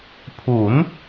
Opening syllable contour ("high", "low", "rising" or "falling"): rising